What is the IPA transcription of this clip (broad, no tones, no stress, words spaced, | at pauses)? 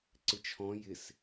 ǀɪt͡ʃʰɔ̃ jɪs